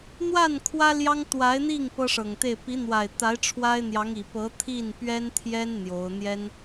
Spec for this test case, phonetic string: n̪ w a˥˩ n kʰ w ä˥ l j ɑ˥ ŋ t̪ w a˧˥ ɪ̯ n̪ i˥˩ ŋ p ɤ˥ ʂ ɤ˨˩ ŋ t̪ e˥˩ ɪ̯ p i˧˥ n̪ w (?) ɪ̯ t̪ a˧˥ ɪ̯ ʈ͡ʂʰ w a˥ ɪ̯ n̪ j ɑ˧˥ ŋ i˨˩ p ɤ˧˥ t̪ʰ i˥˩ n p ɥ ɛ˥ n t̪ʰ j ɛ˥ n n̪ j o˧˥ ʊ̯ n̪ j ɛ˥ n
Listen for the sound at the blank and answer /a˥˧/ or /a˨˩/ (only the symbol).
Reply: a˨˩